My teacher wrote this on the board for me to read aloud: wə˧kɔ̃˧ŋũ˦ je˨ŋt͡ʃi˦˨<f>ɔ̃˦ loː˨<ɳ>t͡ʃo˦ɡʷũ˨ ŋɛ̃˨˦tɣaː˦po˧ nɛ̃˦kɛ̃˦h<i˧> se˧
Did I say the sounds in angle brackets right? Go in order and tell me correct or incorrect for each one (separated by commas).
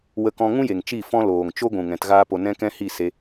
correct, incorrect, incorrect